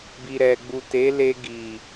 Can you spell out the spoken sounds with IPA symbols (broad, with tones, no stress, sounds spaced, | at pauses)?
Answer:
b i˨ ɾ ɛ˨ ɡ͡b u˨ t e˨˦ l e˧ ɡ i˨